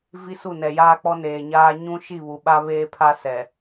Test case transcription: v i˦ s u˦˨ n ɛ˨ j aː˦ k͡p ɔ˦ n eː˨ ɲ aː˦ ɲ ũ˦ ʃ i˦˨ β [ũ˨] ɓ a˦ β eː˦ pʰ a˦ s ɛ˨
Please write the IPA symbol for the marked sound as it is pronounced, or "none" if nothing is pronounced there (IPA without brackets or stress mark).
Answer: u˨